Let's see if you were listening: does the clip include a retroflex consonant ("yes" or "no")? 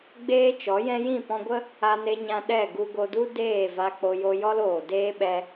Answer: no